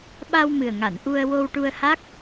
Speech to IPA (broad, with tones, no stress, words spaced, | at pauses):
ɓa˧wmɨ˨˩ə̯ŋa˨˩˨n ʔu˧ə̯ wo˧wʈu˧ə̯ha˦˥k̚